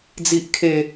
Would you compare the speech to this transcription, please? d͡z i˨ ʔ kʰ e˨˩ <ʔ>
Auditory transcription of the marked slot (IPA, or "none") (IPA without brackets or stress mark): none